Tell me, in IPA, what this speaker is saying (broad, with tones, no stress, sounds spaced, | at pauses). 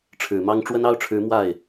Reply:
ʈ͡ʂʰ ɻ̩˨˩ m ɑ˥ ŋ ʈ͡ʂ w ə˥ n ɑ˥ ʊ̯ ʈ͡ʂʰ ɻ̩˧˥ m w a˥˩ ɪ̯